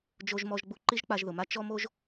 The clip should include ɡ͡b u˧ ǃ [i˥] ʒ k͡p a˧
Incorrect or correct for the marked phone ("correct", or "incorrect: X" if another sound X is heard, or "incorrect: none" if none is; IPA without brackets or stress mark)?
correct